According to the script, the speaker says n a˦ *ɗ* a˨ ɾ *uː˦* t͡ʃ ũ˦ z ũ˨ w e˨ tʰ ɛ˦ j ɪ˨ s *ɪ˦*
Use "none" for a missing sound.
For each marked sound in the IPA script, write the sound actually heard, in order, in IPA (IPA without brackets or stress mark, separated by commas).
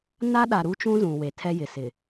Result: ɗ, u˦, ɪ˨